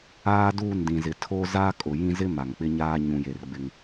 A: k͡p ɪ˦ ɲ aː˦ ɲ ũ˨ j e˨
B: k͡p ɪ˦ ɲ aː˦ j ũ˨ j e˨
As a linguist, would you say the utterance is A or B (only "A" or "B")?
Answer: A